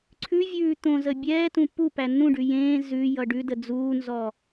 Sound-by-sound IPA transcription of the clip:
ǀʰʉvʲʉː t̪õzə bʲɛːtũ pu pænːũɖʉ jẽː zʉ jʌɖʉdə d͡zuːnzɔ

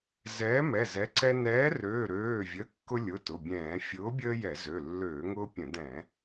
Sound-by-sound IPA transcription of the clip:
zɛː˨˥mɛ˩˧˩ zɛ˨˥ǀɛ˦ nɛː˨˥røː˩˧˩ɾøː˩˧˩vʲə˩˧˩ kːʊ˦lʲʊ˩˧˩ tʊ˩˧˩bʲɛ̃ː˧˩˧ fʲʊː˨˥bʲəː˦ jɛ˧˩˧zø˩˧˩ lːøː˧˩˧ŋʊː˦pʲə̃˧˩˧ dɛ̃˧˩˧

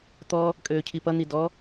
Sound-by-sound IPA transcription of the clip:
t̪ɔ | kʼøːcʰipʌn̪i dɔ

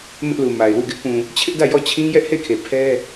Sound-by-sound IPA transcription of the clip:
mɪ˦ʔlu˨ ma˨ɪ̯wu˦˨ ɡɪ˦ʔpũ˨ | t͡ɕʰɪ˦ʔdä˦˨ jɔ˦˨t͡ɕʰĩ˦ jɛ˦ʔhe˦˨ɪ̯kʰe˨ pʰɛ˦

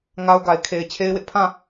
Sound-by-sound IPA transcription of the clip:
ŋa˦ʊ̯ɡa˨ɪ̯ kʰe˨ɪ̯t͡ɕʰe˦ɪ̯wɪ˦ʔ pʰã˦˨

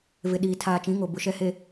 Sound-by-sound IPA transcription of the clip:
vɪ˨ ɗiː˨ tʰaː˨t͡ʃĩ˨˦ŋo˨ bʊ˨ʃɛ˨he˨

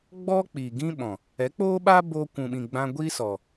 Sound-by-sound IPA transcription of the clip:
ɡ͡bɔ˦k͡pi˨ɡĩ˦ɓɔ̃˨ | ɛ˨˦k͡poː˦ɓa˦ bo˧ kʷũ˨ɓĩ˨ɡ͡bã˧ ɡʷi˦sɔ˨

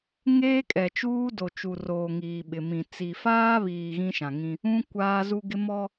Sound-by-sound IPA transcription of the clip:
ŋeː˦kʼɛ˨t͡ʃuː˦ do˨t͡ʃu˨roː˨ ŋiː˨ɓɪ˨mĩ˨ t͡si˨faː˦βiː˨ ɣĩ˦ʃã˨ŋĩ˦ | ũ˦ kʷaː˦zu˦ɡɪ˦ mɔ˦

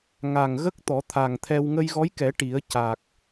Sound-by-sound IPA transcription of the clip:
ŋa˨˩ŋɣə˦˥k̚ t̪ɔ˨˩˦t̪ʰa˨˩ŋt̪ʰɛ˧w ŋə˧jɣɔ˧˥jkɛ˨˩˦ ʈi˨˩˦ə̯ ca˨˩k̚

